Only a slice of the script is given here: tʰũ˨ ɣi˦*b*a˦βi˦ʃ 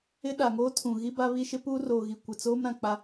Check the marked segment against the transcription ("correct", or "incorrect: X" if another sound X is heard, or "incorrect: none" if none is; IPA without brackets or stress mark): correct